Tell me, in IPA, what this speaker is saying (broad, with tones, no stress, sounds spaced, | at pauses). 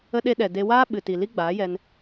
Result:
ə˧ ɗ e˧ ɗ ɛ˨ d e˧ w aː˦ ɓ ɨ˨ t i˨ l i˦ ɡ͡b aː˨˦ j ɛ˧ n